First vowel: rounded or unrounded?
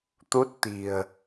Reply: rounded